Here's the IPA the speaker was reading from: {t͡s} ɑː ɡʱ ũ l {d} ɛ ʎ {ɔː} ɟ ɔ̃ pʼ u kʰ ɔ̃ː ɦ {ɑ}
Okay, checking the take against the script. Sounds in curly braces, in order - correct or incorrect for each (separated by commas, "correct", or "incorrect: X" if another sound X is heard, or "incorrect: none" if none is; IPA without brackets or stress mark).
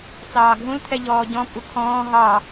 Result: correct, incorrect: tʰ, correct, correct